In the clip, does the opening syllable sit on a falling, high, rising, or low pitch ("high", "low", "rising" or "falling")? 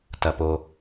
low